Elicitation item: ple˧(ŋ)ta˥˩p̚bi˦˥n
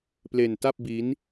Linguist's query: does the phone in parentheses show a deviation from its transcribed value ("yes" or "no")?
yes